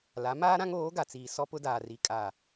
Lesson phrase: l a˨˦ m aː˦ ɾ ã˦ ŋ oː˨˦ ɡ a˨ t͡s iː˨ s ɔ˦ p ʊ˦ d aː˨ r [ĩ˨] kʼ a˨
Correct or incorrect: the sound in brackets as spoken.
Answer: incorrect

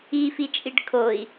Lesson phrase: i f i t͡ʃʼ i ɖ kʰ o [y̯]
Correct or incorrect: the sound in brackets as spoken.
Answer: incorrect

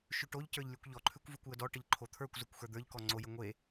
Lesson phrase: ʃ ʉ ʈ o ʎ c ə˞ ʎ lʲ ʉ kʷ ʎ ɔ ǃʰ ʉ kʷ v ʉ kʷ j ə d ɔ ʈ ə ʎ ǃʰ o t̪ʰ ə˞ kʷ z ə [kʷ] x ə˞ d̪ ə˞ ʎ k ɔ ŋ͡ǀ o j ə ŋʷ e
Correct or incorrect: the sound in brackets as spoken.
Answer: correct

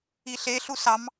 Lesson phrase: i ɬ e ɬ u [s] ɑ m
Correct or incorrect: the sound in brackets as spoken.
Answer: correct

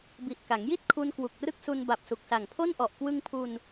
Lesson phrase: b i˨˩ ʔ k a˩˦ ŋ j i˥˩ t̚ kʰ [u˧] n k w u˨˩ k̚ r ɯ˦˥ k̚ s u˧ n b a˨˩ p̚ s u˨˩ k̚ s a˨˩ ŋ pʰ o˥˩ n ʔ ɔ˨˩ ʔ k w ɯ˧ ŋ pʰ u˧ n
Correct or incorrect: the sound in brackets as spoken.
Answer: correct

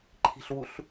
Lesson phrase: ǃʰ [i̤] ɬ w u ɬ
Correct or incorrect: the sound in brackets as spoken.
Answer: correct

